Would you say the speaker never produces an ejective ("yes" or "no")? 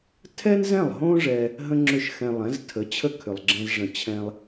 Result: yes